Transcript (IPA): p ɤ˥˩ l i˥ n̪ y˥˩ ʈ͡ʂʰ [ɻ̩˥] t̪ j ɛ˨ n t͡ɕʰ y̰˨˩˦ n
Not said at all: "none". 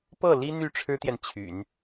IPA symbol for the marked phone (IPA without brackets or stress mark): ɻ̩˥